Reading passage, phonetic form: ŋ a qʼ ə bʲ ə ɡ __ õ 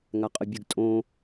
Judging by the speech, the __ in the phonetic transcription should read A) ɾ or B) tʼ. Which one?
B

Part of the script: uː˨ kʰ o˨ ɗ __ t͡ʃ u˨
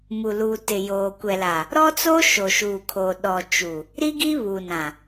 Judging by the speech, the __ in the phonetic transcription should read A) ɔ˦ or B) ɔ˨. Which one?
B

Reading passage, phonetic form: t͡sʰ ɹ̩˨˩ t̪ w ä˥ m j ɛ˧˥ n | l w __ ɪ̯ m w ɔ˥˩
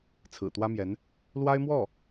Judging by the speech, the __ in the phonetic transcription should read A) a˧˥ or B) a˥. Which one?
B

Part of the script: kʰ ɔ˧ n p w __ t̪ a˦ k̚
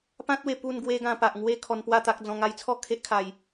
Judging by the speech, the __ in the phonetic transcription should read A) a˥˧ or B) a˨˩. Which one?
A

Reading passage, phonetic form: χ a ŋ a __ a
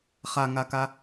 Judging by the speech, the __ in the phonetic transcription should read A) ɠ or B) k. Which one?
B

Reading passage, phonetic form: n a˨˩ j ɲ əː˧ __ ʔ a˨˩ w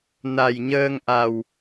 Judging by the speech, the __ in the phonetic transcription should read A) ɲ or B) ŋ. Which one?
B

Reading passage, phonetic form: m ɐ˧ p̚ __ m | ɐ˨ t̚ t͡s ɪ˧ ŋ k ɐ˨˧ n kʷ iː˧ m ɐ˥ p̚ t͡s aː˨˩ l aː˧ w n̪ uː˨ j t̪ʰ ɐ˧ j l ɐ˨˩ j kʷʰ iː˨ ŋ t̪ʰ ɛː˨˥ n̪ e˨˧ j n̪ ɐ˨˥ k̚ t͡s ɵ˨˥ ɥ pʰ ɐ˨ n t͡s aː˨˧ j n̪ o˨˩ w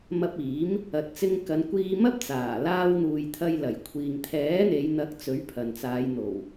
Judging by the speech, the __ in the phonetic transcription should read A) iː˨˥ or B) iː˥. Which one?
A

